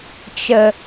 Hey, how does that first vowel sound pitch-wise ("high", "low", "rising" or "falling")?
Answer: low